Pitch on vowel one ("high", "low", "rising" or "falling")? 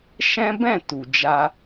high